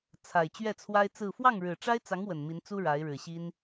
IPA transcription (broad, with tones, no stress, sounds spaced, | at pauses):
t͡sʰ a˨˩ ɪ̯ t͡ɕ ɥ ɛ˥˩ t͡sʰ w a˥ ɪ̯ t͡s ɹ̩˥˧ f w ɑ˥˩ ŋ ɻ ɻ̩˨˩ ʈ͡ʂ a˥ ɪ̯ t͡s ɑ˧˥ ŋ w ə˨˩ n m i˧˥ n t͡s u˥ ɻ a˧˥ ɪ̯ ɻ ɻ̩˨˩ ɕ i˥ n